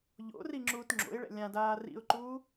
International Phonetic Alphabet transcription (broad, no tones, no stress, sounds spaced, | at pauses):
ʎ o̰ r i ŋ͡ǁ uː t ŋ͡ǁ o̰ ɪ̯ ɭ ɛ̰ lʲ ã d aː r ḭ ʊ̯ ǃ uː